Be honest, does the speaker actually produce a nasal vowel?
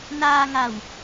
no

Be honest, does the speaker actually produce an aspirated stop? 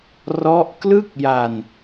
no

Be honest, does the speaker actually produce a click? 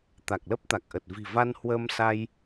no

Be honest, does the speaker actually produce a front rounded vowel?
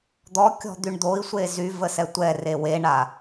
yes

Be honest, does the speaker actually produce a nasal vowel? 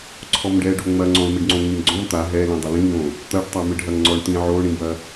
yes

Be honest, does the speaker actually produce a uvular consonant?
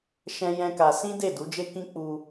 no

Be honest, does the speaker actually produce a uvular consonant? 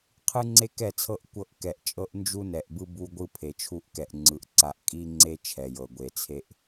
yes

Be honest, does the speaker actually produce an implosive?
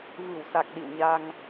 yes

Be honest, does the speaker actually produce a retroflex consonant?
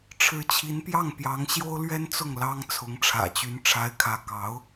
yes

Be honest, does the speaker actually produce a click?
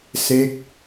no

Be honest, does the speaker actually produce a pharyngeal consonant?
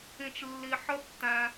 yes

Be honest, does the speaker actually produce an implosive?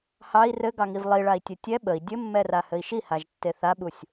yes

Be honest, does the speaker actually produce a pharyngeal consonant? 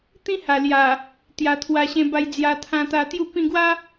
no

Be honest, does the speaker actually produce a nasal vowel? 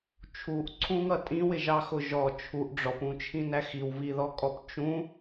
yes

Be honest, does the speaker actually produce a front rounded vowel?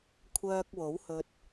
yes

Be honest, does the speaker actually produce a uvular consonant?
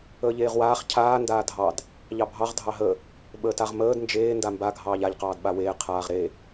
yes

